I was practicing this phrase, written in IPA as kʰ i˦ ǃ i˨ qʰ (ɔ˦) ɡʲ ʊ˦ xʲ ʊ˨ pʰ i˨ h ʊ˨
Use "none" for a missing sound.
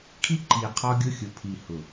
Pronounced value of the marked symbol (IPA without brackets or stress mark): ɔ˦